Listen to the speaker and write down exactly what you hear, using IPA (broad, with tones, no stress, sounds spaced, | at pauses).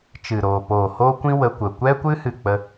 t͡ʃ ɨ˨ ɾ oː˨ p oː˨ h oː˦ kʷ ĩ˦ w ə˧ kʷ ə˨ kʷ ɛ˦ kʷ ɨ˦ h ɨ˦˨ k͡p ə˦